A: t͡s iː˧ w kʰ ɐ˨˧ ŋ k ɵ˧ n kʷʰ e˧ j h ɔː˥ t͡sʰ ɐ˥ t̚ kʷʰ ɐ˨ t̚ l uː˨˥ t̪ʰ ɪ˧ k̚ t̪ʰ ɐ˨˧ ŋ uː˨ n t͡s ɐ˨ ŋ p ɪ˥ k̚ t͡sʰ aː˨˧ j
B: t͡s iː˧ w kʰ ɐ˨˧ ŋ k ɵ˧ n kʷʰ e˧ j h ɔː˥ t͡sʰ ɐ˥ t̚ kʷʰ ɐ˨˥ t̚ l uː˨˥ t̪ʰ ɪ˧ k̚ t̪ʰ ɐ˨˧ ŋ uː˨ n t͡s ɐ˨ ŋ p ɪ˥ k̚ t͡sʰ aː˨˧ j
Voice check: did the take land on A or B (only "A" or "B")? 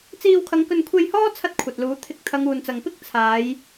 A